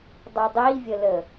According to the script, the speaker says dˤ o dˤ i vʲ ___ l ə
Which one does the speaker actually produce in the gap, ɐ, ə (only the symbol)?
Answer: ə